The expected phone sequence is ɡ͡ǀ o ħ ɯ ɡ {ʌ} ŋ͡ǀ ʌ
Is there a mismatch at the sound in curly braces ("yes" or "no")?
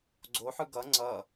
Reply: no